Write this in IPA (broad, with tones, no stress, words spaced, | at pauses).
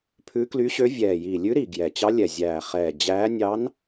pʰʉ˧˥kly˧˥ɕø˧˥ vʲɛː˨˩jiː˨˩lʲʉ˧˥ɾi˨˩ ɡjɛ˨˩t͡ɕɑ˧˥ lʲɛ˨˩zʲæː˨˩χɛː˨˩ d͡ʑæː˧˥ nʲɑ˧˥n